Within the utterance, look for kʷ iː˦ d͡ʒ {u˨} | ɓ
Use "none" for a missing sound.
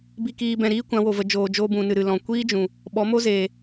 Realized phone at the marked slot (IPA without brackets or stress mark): ũ˨